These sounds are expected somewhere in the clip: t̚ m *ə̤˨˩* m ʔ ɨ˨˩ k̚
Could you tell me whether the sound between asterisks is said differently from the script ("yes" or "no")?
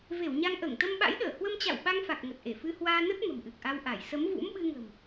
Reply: no